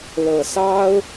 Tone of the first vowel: low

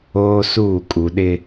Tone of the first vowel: high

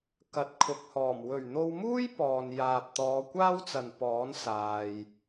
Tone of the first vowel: rising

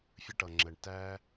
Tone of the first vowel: high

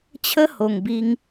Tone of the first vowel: high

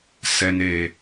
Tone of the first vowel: low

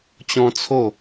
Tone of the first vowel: high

